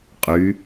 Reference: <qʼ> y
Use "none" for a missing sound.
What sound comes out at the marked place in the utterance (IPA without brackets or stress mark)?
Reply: qʼ